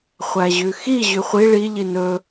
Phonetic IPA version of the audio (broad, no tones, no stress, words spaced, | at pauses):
χʷæʑʉxi ʑʉχʷi ɭi ʎinɵ